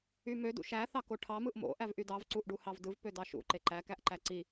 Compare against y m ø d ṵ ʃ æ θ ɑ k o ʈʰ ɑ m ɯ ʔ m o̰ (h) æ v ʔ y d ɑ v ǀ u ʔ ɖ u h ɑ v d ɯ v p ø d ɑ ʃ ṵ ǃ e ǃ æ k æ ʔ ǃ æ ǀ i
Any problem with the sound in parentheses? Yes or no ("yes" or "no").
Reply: yes